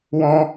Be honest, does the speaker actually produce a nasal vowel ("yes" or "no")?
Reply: yes